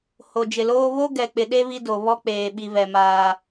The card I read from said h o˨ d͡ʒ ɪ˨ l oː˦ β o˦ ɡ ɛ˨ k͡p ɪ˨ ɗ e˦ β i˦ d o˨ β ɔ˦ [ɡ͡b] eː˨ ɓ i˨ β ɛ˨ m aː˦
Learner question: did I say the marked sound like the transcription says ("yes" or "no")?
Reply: no